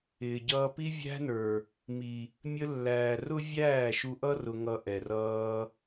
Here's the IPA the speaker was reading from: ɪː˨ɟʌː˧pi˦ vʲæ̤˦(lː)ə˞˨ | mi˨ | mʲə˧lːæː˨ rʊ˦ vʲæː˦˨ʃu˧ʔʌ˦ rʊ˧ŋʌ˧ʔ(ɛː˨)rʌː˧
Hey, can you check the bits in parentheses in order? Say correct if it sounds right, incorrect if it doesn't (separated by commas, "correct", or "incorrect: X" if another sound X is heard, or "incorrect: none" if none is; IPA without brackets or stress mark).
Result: incorrect: n, incorrect: ɛ˨